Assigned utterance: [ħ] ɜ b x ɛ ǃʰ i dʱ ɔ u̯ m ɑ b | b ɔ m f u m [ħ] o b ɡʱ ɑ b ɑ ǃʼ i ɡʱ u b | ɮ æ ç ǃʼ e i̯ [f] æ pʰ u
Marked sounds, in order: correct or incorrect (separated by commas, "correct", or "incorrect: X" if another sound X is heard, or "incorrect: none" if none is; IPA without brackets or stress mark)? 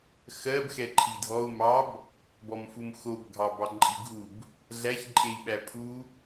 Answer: incorrect: x, incorrect: x, incorrect: ɓ